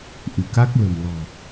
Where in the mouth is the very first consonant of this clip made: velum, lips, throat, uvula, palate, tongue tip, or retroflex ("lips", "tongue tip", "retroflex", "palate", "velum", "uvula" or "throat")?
throat